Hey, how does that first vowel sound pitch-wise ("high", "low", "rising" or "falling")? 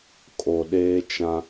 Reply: low